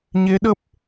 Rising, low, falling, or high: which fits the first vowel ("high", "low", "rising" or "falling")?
rising